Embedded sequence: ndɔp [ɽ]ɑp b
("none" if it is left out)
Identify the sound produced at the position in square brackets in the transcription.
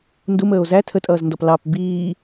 l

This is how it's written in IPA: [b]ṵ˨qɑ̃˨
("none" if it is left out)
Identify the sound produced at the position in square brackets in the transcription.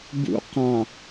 b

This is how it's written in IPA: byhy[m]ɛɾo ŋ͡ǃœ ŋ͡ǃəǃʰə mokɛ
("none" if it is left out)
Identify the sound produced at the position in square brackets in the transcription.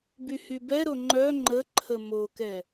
b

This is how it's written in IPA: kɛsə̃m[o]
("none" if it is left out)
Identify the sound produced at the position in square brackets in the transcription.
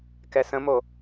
o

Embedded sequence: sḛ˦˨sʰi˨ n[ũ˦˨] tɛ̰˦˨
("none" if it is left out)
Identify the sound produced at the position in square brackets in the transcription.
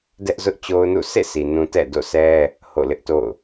ũ˦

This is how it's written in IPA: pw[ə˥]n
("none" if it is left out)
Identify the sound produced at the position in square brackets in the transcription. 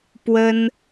ə˥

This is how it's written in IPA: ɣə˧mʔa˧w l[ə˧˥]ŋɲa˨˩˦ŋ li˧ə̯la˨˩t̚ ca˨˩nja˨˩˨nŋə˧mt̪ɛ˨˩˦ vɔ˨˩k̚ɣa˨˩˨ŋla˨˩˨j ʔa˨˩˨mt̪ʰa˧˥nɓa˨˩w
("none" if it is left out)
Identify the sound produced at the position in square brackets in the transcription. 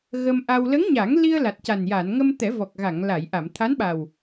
ə˧˥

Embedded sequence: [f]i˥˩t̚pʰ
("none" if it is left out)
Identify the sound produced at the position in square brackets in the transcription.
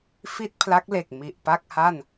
f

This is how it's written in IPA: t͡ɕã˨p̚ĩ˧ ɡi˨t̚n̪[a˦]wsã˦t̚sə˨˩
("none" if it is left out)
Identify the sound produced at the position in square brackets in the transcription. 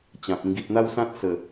a˦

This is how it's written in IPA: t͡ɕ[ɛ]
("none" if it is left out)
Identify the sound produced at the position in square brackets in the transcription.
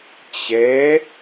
ɛ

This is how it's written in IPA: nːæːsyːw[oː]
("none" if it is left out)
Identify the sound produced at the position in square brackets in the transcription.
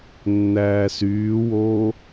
oː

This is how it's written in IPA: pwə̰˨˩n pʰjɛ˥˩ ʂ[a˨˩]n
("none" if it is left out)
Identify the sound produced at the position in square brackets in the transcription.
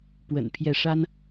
a˥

